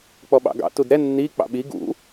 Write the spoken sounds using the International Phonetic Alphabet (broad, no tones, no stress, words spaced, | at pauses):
k͡pɔɓɑ̰ɡɑ̰ tudɾɛ nːi k͡pɑ̰ɓi ɡṵ